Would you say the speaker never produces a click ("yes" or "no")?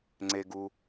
no